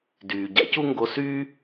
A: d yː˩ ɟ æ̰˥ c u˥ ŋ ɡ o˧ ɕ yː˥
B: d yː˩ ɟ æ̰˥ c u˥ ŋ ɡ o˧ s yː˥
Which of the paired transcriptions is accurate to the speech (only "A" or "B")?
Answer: B